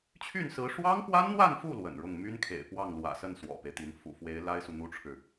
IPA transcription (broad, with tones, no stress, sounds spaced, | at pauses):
t͡ɕʰ y˥˩ n s ɹ̩˧˥ ʂ w ɑ˥ ŋ p w a˥ n n̪ w a˥˧ n f u˥˩ l w ə̰˨˩ n ɻ ʊ˥˩ ŋ m y˥ n kʰ ḛ˨˩ ɪ̯ p w ɑ˥˩ ŋ l w ä̰˨˩ s ə˥˩ n s w ɔ̰˨˩ p e˦ ɪ̯ t̪ i˧˥ n f ṵ˨˩ f w e˧˥ ɪ̯ l a˥ ɪ̯ s u˨ n̪ u˥ ʈ͡ʂʰ ɻ̩˨